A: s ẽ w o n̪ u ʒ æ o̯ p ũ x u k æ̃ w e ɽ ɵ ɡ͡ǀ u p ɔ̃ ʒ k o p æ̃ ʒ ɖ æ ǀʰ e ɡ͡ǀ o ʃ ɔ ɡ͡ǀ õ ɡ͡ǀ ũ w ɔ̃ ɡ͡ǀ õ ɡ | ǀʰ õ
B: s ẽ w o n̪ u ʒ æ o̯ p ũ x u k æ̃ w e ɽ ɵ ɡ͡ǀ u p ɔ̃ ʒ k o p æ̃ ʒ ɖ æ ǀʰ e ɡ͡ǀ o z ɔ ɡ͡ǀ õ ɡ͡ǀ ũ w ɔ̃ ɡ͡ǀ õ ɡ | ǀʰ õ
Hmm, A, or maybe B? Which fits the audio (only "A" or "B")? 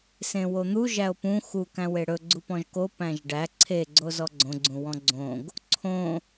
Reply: B